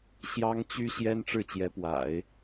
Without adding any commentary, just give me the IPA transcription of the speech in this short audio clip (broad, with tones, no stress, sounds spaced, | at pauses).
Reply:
ɕ j ɑ˥ ŋ t͡ɕ y˥ ɕ j ɛ˥ n ʈ͡ʂ ɻ̩˥˩ t͡ɕ j ɛ˧˥ p w a̰˨˩˦ ɪ̯